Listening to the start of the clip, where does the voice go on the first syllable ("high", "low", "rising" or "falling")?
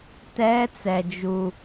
high